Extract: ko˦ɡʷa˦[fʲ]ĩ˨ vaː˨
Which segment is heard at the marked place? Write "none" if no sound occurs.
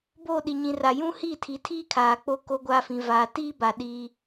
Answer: f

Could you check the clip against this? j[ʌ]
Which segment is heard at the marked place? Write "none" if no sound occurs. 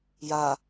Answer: a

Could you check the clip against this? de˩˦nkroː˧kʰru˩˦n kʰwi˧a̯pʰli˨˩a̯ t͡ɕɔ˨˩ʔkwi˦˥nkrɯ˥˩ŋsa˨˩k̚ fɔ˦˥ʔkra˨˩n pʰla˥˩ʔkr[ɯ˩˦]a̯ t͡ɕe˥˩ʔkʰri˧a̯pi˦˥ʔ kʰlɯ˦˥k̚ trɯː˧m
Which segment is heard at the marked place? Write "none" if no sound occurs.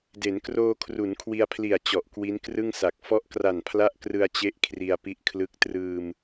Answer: ɯ˧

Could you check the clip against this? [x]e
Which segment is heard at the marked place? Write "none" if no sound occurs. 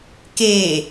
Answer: k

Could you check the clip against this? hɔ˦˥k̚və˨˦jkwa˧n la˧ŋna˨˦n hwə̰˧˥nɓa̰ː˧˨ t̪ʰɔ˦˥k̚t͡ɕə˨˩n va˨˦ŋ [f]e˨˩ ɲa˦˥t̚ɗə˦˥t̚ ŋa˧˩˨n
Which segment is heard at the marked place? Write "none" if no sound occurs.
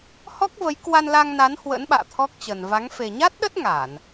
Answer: f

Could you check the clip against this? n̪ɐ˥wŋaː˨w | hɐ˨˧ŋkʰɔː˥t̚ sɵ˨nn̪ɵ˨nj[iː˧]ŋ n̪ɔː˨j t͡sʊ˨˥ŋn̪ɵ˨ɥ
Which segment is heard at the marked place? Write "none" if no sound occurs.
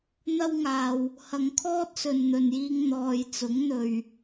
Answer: iː˧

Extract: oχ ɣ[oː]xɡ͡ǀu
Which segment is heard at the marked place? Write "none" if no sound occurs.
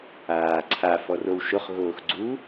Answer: oː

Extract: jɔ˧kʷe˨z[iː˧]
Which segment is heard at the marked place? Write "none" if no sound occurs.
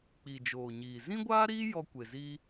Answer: iː˧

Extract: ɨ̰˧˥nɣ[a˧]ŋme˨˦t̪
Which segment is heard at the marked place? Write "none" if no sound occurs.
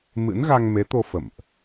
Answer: a˧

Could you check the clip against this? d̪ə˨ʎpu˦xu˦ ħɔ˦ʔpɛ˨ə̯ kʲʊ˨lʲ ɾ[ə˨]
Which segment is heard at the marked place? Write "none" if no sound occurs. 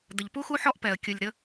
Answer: ə˦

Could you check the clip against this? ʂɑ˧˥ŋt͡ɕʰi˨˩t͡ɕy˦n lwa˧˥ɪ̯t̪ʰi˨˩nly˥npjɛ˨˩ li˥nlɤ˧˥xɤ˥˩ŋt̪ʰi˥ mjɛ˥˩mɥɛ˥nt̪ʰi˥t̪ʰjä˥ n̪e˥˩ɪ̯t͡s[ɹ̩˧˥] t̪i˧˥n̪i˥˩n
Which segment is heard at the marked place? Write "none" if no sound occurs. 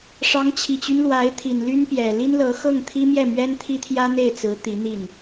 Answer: ɹ̩˧˥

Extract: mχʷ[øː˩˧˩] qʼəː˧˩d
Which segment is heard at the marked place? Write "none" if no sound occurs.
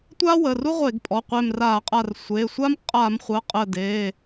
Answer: əː˩˧˩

